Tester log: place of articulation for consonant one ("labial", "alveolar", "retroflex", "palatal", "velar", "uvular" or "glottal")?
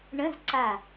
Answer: retroflex